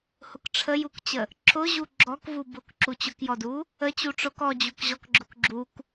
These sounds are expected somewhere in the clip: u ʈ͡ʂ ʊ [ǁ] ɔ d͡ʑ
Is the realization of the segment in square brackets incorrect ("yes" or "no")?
yes